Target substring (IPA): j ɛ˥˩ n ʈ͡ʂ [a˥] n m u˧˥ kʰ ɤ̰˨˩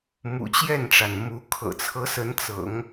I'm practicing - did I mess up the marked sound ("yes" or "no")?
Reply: yes